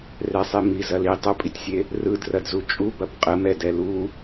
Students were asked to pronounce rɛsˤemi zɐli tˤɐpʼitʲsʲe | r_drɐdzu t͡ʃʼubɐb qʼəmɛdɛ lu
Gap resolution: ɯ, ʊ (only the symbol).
ɯ